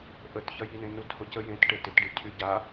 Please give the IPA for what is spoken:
ʔətçɐjinẽ nuthʊcə jẽtʈe tɪtɖi cʰyɟa

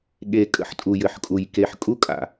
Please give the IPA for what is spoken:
ɠe˨ kʼə̰˦ħ tʼu˨jɘ˨ħkʼu˨j ke˨ħ kʼu˦kʼa̰˨

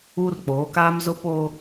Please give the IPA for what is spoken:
uː˦rk͡poː˨˦ kaː˦mzʊ˦ poː˦

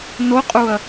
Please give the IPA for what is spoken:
noqʼuɐ̯

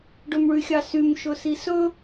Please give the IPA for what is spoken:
ɖɵmɭyxʲɑsym ʃɵsisɵ

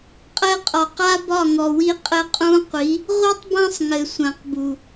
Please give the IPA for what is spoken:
qʼɛ˧qʼɒ˨ qa˦bɒ˦˨ ŋɔ˨wi˧ qʼɘ˧qʼũ˧ qʷi˨˦ | ʁʷi˦tˤbã˦sˤŋɘ˨ sʷã˨qbu˨

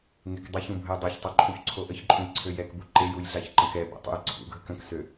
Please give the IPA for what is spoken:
ŋekdˤəçũ bʱəjdˤoçtˤœ ǃʰuçǀʰoʔəçǃʼũj ǀʰøjɛkbu ǃejuj ɮaçǃə̃kɛ bṵtˤṵjǀʰṵɡʱək ə̃ksø

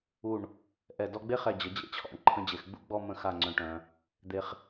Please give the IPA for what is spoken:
u˧˩ɳ | ʔɛ˧˩ dɔ˧ɡ͡be˥χɛ˧˩ d͡ʑə˩˧ d͡ʑḛ˥t͡ɕʰɔ̰˧˩ɳ ǃʰə̃˧d͡ʑe˩˧xɡ͡bṵ˥˧ɡ͡bɔ˥˧ mə̃˧˩xa˧˩ ŋ͡ǀœ̃˧˩ʈœ̃˩˧ | d̪e˧χ

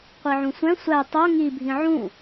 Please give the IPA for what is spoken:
qʷiʕũsʷæ̃ sʷæ tˤo ŋibʱĩ ʕũ

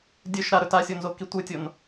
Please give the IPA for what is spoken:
dʲɵʃ ɾaɾɵt asʲonzoki tʷɨtʲon

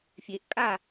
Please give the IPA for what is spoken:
fʲeʔ kʼa

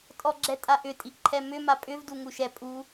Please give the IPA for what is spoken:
tʼɔɡ͡ǁɛtʼaʔʏ tʼiʔǃʰɛmʏ mapʼʏv duŋuʃɛ pʼu

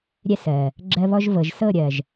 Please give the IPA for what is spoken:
ɾʲɛ˦sɜ˨ | ɡ͡ǁɜ˦βɔ˦ʒ vɤ˨ʒ sɤ˦˨ɾʲɜ˨ʒ

